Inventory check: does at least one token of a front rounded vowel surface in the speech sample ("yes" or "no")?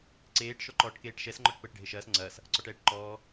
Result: no